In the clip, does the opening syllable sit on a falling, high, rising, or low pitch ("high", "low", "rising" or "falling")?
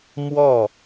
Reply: falling